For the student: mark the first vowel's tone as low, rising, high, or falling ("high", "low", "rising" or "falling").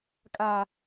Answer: low